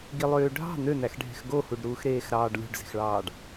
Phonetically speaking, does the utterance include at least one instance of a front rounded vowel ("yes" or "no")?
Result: yes